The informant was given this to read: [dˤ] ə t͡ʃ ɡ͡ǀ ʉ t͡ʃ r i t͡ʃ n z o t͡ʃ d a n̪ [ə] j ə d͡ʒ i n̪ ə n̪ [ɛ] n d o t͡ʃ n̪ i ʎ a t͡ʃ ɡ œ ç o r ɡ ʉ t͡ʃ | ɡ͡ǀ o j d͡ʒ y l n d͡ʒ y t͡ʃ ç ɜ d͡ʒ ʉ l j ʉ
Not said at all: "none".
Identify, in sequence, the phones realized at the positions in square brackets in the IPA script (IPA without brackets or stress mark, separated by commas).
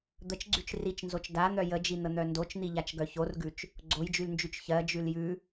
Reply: d̪, œ, œ